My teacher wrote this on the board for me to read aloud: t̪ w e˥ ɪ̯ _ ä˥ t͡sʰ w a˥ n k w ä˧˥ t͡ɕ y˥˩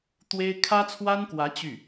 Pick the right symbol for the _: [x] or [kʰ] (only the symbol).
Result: kʰ